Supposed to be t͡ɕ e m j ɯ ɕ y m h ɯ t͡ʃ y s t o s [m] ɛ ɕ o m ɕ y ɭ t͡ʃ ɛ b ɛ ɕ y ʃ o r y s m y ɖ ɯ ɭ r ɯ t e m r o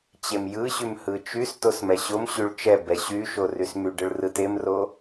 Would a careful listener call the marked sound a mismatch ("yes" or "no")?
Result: no